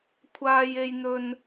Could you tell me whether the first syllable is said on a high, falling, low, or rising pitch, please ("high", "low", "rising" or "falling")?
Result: high